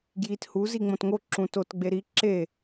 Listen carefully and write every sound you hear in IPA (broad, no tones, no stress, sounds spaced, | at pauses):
ɡ j i t h u z i ŋ͡m õ t ŋ o ǁ ũ t o t ɡ͡b e ɾ i ǁ e